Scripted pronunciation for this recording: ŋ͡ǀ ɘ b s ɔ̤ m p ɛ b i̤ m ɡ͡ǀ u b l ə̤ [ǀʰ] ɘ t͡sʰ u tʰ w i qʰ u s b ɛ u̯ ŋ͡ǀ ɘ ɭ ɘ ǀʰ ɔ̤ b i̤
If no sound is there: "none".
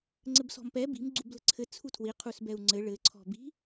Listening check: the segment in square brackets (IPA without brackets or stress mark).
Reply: ǀʰ